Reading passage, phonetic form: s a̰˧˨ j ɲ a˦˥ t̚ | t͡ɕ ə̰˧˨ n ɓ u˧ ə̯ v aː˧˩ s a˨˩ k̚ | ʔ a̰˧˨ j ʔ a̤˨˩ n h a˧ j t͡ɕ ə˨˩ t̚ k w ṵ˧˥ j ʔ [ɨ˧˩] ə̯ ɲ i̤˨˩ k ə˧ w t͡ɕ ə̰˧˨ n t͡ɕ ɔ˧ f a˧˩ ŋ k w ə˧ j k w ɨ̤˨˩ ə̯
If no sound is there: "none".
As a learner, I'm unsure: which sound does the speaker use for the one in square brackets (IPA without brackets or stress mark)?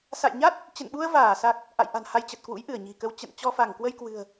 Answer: ɨ˧˩